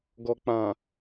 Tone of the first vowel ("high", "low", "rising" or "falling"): low